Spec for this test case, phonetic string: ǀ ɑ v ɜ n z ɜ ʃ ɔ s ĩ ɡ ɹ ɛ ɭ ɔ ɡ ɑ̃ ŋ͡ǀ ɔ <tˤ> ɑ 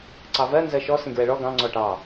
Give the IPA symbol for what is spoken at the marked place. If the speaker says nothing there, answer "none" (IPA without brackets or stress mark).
ʈ